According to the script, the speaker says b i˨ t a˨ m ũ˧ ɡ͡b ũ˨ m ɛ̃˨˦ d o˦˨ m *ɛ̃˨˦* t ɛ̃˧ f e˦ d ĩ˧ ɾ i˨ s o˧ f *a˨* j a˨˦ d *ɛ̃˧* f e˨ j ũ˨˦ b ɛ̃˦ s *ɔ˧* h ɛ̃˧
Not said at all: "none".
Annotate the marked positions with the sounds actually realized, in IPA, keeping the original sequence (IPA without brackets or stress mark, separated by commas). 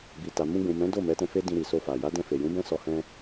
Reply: ɛ˨˦, a˨, ɛ̃˧, ɔ˧